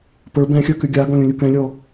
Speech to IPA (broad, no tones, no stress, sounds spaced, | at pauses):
p ə˞ b ɛ̃ xʲ ə˞ k y ɡʲ a ɡ ɔ̃ lʲ ũ lʲ u k ɛ̃ lʲ ɔ